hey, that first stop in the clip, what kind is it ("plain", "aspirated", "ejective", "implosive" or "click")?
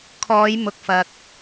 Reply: aspirated